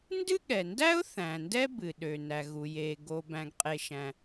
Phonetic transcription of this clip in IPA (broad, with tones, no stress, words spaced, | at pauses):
ndɨ˥ɠɛ˩ndæ˥ʊ̯ θæ̃˩ndɛ˥bɨ˩ɗø˩ næ˩ɣu˩ jeː˩ ɡo˩ bæ̃˩ɡqʼe˩ʃæ̃˩